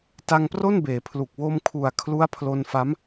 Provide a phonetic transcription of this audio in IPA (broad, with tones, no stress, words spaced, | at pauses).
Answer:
ta˧ŋpro˥˩nbeː˩˦pʰlu˨˩k̚ wo˧mkʰu˨˩a̯ kʰlu˦˥a̯pʰlo˧nfa˦˥m